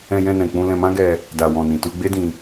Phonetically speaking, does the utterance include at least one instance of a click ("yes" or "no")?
no